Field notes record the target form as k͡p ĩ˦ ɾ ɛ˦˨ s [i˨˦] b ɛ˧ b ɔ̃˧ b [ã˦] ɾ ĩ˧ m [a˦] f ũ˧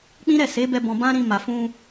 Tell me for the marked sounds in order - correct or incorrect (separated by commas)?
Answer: incorrect, correct, incorrect